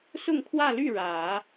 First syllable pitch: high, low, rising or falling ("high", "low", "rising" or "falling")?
falling